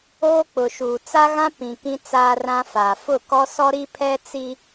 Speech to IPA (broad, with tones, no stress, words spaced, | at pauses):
oː˦k͡pʊ˨ʃuː˨ t͡sa˦ɣã˦ pĩ˨kĩ˦ t͡saː˦rã˦faː˨ fʊ˦˨kɔ˦sɔ˦ ɾi˦pʰɛ˦ t͡si˦